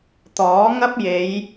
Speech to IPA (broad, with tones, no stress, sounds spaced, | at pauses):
t̪ ɔː˨˥ ŋ ɐ˥ p̚ j e˨˧ j